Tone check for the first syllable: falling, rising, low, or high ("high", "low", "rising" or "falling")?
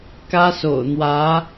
high